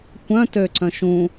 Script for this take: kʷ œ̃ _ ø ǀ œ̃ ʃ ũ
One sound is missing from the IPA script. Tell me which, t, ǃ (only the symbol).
t